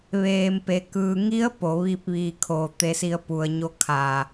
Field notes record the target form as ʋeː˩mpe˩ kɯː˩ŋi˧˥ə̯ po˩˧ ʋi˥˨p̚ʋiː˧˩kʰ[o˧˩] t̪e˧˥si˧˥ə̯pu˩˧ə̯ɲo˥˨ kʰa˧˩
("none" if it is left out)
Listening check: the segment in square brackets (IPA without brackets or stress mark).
o˧˩